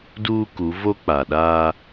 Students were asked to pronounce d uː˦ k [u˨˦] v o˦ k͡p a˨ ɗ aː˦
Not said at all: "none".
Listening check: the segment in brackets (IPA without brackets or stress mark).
u˨˦